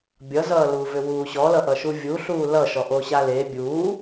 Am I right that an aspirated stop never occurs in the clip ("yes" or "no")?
yes